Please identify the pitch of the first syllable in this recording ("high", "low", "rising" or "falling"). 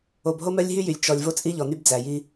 low